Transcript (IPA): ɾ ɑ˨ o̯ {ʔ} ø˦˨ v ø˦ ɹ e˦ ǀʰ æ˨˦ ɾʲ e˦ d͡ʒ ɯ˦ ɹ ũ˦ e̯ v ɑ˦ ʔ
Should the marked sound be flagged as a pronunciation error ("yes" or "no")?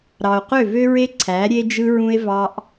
yes